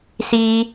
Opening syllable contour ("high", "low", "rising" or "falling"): high